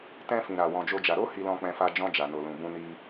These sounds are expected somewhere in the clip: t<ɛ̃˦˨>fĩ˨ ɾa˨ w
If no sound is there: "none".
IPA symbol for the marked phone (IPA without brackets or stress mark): ɛ̃˧